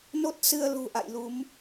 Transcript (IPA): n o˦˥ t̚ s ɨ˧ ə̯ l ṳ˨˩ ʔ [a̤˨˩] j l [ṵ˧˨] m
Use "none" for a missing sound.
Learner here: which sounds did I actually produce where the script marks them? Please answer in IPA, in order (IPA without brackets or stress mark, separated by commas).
a̰˧˨, u˨˦